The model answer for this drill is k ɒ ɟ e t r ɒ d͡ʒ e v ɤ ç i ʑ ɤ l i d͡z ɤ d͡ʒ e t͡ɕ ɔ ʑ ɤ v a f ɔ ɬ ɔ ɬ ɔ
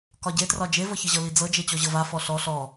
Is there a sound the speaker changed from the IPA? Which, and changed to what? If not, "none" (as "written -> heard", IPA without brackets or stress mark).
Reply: none